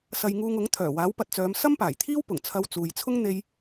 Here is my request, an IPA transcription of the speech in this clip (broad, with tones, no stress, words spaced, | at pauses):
sɐ˧jŋuː˧ŋʊ˨˥ŋ t̪ʰœː˨˩waː˨˥wpɐ˨t̚t͡sœː˨˧m sɐ˥mpaː˨˩jt̪ʰiː˥wpʊ˨˩ŋ t͡sʰɐ˧wt͡suː˨jt͡sʰʊ˥ŋ n̪e˥j